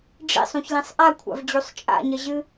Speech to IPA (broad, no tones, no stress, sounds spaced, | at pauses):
ɖ͡ʐ ḭ sˤ ũ ç l ĩ sˤ ʔ a kʷʰ a̰ v d͡ʑ u sˤ t͡ʃʼ a̰ ɲ ɐ ʑ ɨ